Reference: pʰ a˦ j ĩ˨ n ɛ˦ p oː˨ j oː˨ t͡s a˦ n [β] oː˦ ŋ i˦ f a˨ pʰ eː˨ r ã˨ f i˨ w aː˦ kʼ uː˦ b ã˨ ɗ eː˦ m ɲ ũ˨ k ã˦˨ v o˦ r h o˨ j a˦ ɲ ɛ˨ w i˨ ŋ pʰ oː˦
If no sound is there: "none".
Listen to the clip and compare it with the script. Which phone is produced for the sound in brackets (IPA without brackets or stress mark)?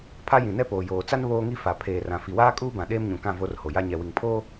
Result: β